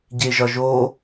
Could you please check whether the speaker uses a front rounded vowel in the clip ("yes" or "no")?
no